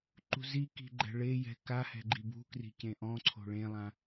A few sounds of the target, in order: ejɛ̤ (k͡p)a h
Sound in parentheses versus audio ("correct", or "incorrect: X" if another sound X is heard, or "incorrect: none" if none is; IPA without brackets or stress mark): incorrect: k